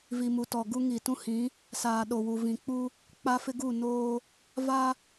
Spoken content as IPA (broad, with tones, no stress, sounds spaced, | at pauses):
v i˨ m u˨ t ɔ˨ ɡ u˦ ŋ i˨ t ũ˦ h ĩ˨˦ | s aː˨ ɗ o˨ w u˨ v ĩ˨ k͡p u˦ | k͡p a˦ f ɪ˦ ɡ u˦˨ n oː˦ | v a˦